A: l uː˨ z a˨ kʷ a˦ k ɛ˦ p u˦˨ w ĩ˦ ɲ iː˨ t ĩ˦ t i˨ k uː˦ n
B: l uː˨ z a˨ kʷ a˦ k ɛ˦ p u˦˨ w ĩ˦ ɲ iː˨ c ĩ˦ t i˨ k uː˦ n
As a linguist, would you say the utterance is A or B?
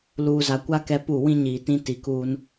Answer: A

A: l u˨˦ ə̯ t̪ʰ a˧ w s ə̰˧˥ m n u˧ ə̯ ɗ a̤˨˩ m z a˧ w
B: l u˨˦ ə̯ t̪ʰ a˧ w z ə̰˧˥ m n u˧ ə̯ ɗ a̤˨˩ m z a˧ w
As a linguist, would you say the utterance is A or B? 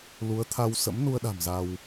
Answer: A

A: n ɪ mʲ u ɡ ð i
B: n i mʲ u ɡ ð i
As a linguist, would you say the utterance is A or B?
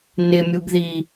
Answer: A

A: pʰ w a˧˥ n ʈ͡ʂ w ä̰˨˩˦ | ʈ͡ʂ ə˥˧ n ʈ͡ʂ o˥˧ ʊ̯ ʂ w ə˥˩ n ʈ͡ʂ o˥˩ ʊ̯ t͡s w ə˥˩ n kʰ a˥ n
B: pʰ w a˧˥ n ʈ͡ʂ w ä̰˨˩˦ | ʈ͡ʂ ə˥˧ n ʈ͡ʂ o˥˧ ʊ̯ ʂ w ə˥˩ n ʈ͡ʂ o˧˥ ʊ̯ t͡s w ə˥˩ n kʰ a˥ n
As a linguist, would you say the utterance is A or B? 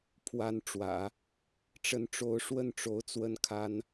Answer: B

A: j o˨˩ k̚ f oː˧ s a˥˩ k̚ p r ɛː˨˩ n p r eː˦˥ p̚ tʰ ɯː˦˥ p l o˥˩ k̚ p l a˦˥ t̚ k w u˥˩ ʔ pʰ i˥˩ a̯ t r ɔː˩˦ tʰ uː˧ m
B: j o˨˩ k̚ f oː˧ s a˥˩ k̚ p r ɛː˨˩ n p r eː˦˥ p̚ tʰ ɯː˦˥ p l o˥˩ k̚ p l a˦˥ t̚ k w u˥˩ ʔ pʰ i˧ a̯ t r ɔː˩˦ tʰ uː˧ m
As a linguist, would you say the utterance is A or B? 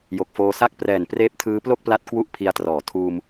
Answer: B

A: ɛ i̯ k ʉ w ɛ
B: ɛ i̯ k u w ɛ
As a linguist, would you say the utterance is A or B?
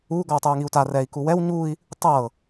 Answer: B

